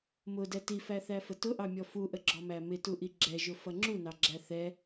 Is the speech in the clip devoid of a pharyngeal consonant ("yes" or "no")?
yes